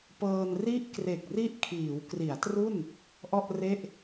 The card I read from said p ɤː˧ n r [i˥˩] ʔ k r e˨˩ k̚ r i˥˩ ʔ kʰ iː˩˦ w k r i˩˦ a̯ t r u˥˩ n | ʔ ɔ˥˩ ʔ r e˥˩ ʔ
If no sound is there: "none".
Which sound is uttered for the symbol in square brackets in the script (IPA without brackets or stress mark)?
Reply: i˥˩